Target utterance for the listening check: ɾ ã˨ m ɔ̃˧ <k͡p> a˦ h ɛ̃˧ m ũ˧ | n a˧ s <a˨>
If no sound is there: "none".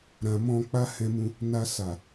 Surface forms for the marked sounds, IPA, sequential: k͡p, a˨

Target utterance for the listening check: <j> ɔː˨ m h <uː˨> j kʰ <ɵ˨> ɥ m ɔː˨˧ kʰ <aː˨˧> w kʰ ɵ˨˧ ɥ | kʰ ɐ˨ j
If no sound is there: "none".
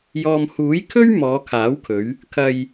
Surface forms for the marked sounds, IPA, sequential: j, uː˨˥, ɵ˥, aː˨˥

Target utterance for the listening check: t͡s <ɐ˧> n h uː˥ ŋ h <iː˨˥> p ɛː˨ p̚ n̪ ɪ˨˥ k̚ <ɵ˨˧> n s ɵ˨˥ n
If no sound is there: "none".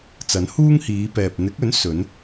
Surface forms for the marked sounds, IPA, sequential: ɐ˨˥, iː˨˧, ɵ˨˥

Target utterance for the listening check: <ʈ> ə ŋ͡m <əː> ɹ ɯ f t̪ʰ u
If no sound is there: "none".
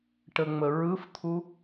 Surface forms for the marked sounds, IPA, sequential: ʈ, ə

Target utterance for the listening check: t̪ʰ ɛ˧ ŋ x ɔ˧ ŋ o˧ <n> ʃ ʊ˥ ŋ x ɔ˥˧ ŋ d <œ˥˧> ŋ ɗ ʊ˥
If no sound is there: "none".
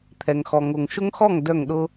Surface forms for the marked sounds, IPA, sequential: ŋ, œ˥˧

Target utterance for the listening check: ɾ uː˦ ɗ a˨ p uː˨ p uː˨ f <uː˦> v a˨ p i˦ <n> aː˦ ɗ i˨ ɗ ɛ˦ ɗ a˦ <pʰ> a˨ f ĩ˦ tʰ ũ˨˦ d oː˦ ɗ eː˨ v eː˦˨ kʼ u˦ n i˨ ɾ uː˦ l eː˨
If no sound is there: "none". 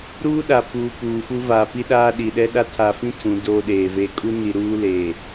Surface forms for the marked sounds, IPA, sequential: u˦, ɗ, tʰ

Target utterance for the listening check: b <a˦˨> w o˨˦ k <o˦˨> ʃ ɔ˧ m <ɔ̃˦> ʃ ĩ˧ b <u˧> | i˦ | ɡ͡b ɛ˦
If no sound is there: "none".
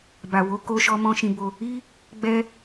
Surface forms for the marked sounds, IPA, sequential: a˨, o˧, ɔ̃˦, o˧

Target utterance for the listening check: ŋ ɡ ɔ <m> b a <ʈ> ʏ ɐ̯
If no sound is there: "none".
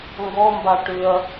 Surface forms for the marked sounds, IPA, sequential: m, ʈ

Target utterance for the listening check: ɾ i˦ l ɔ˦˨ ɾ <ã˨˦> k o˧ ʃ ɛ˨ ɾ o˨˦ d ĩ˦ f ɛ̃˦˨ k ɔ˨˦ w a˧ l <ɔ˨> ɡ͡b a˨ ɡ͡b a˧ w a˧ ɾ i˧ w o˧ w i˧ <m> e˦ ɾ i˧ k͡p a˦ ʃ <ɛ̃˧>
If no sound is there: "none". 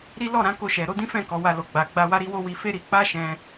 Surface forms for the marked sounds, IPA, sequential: ã˨˦, o˨, f, ɛ̃˧

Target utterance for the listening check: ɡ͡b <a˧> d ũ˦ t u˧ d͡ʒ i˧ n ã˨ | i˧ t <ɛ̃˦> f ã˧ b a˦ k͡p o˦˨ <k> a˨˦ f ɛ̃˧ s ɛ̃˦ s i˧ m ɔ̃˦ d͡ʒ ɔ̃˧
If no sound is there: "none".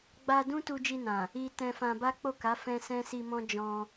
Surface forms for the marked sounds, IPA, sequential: a˧, ɛ̃˧, k

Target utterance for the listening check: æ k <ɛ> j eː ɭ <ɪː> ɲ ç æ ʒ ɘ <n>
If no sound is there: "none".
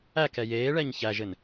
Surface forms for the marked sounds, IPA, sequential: ɛ, ɛː, n

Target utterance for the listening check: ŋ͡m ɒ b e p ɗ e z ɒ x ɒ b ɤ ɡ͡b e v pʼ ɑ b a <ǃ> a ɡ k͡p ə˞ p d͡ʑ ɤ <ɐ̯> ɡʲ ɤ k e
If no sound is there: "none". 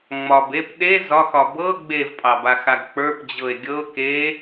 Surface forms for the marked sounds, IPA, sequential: x, e̯

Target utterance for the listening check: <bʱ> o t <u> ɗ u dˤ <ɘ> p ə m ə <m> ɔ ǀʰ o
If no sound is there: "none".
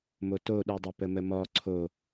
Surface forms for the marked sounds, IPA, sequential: m, o, ɘ, m

